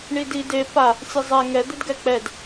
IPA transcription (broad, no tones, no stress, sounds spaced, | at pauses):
ɳ i d i d e p a | sʲ e zˤ ɛ ŋ ɛ d̪ e d ɡ ɛ k͡p ɛ d